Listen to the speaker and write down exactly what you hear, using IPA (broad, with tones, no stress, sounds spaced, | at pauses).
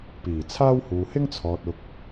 p iː˨˩ t͡sʰ aː˥ w h uː˨ h ɪ˥ ŋ t͡sʰ ɔː˨ t̚ ʊ˨ k̚